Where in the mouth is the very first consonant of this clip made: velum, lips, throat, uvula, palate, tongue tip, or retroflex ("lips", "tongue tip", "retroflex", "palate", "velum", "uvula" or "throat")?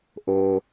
throat